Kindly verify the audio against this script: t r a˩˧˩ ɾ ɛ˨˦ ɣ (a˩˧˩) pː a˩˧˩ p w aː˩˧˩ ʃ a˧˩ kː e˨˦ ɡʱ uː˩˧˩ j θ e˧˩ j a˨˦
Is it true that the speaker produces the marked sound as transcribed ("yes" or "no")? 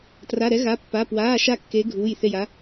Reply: yes